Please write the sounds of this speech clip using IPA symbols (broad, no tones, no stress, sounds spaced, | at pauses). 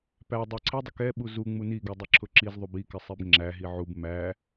p æ dˤ ɛ ǀʰ ɪ dˤ ɪ k ɛ ɓ u z u ŋ͡m u n i ɡ u dˤ ɪ ǁʰ ʊ ǁ i z ðˤ u b i k ɪ sˤ i b ŋ͡ǁ æ ɦ i ʕ u b m æ